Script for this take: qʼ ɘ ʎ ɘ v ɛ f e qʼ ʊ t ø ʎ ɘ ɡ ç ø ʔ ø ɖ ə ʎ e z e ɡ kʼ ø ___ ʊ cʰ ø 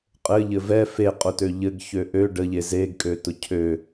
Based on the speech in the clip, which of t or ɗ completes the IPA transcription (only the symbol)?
t